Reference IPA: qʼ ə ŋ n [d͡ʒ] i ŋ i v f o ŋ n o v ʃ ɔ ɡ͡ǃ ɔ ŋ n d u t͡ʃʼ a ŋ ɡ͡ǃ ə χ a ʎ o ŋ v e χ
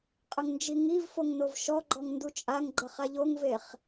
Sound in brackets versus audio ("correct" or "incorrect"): correct